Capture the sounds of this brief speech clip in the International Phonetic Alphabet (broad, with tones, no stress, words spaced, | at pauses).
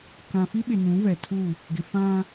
kã˨fi˦ɓɪ˨ nũ˨˦vɛ˨tʰu˦˨ | ɡɪ˨fã˦